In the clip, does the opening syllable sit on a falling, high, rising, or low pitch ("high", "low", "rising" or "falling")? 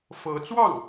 rising